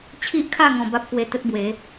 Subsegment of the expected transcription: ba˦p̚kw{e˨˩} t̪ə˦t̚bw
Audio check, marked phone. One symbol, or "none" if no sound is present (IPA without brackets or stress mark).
e˧